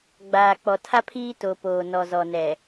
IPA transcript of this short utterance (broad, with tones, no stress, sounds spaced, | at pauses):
ɡ͡b aː˨ k͡p ɔ˨ tʰ a˦ pʰ iː˦ t o˨ p oː˨ n ɔ˨ z ɔ˨ n ɛ˨